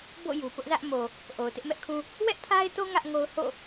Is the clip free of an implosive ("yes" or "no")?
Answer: yes